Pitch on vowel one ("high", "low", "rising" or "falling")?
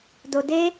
low